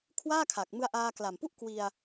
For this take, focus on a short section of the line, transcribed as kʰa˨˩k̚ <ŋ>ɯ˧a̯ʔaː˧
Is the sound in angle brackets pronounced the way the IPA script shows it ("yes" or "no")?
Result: no